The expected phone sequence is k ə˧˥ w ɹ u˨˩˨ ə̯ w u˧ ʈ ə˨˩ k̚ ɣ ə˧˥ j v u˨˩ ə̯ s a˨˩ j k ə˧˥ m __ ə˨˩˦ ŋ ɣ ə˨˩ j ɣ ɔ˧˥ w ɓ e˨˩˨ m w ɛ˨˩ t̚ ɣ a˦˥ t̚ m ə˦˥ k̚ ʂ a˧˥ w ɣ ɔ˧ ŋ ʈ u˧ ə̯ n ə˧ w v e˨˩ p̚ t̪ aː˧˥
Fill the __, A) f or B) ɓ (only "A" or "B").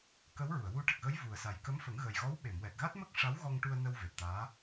A